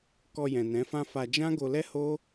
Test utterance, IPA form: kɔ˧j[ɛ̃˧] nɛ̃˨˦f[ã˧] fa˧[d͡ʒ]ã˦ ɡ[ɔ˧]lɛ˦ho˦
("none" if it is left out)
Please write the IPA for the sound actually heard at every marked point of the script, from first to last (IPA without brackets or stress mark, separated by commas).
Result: ɛ̃˨, ã˦, d͡ʒ, o˧